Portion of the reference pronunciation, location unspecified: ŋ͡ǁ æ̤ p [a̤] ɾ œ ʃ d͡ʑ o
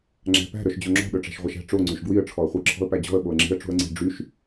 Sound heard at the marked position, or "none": æ̤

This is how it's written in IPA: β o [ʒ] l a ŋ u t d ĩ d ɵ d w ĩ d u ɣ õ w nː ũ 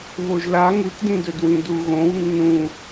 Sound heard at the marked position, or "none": ʒ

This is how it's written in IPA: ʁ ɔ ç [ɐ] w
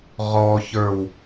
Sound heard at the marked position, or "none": ə˞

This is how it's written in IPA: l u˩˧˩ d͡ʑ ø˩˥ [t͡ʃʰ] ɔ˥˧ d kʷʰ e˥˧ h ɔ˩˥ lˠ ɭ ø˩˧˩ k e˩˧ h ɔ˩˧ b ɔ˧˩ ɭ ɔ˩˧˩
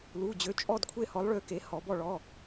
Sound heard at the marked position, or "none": t͡ʃʼ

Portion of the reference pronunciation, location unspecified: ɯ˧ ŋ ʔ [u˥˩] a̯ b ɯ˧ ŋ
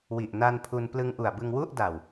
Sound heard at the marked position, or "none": u˨˩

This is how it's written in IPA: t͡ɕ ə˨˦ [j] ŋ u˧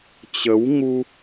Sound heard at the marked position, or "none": w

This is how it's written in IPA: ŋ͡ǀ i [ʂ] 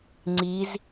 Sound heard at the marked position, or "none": z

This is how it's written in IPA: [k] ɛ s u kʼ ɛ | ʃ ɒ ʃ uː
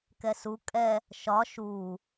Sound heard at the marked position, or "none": k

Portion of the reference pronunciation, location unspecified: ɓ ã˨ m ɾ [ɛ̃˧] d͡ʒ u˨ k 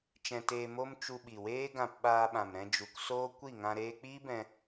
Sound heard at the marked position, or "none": ɛ̃˧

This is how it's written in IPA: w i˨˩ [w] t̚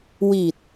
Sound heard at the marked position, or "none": none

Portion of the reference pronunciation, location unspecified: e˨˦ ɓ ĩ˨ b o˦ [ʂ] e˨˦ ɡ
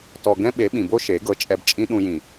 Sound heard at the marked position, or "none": ʃ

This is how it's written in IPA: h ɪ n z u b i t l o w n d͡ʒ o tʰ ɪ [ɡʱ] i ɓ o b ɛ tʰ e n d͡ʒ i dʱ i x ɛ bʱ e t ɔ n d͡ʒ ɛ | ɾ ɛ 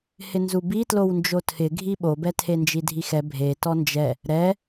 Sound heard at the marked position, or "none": ɡʱ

